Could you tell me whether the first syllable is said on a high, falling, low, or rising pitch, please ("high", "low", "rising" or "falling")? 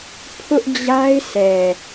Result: high